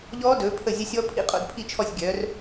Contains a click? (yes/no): no